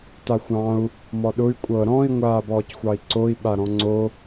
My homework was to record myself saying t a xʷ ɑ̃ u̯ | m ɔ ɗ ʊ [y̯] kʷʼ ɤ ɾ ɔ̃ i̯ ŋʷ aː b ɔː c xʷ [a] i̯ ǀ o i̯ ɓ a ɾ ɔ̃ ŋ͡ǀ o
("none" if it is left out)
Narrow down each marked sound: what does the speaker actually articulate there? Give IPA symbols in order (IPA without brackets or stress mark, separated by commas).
y̯, ɑ